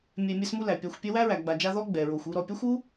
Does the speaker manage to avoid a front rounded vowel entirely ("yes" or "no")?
yes